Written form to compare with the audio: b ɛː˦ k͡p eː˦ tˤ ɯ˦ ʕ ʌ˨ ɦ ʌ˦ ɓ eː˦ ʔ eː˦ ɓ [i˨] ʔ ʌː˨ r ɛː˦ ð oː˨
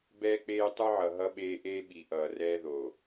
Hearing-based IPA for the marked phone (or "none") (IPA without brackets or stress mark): i˨